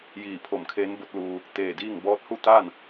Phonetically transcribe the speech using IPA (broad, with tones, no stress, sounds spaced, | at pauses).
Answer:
j iː˧˩ pʰ o˧˩ m kʰ eː˧˥ n b o˧˥ t̚ l uː˧ | t̪ eː˧˩ d iː˥˨ ŋ b ɔː˧˥ t̚ h u˥˨ t̪ aː˥˨ n